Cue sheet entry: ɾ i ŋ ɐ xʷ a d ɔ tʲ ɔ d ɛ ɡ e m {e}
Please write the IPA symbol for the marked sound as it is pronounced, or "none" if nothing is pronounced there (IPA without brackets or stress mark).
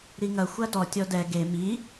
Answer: i